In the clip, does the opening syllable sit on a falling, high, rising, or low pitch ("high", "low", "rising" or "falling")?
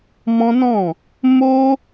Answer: high